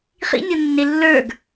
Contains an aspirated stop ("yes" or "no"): no